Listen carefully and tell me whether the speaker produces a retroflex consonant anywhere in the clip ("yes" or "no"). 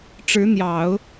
yes